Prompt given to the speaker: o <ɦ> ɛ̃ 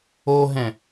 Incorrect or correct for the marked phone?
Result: correct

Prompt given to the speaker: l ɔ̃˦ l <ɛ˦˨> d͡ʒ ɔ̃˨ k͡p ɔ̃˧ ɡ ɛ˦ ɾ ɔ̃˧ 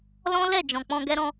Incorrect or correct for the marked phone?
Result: correct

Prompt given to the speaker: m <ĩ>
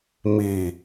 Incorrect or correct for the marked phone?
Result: incorrect: i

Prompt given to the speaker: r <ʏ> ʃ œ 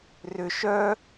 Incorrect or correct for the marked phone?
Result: correct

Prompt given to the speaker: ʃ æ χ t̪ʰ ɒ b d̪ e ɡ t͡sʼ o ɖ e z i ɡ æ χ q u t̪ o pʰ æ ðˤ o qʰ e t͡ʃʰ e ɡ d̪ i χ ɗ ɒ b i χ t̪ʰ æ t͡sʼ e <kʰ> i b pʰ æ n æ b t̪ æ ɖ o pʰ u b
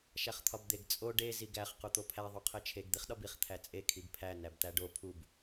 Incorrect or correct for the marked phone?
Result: correct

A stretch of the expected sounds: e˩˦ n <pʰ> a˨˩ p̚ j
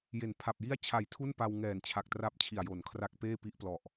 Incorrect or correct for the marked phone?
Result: correct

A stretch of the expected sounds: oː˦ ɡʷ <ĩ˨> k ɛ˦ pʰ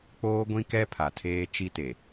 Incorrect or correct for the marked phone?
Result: incorrect: ĩ˦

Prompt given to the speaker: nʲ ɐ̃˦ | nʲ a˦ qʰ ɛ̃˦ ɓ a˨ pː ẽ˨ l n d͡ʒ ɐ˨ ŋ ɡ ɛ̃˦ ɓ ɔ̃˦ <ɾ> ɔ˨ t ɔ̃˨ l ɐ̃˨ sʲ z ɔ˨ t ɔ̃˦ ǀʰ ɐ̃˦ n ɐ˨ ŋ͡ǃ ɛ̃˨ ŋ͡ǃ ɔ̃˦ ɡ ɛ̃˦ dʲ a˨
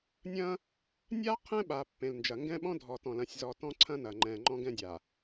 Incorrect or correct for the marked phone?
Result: incorrect: dʱ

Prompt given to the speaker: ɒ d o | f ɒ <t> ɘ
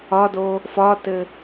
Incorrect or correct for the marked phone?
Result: correct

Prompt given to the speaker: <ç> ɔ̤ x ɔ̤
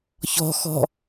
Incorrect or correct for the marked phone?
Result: correct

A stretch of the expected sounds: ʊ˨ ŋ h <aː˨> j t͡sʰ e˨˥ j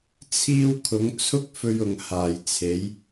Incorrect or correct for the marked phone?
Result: incorrect: aː˨˩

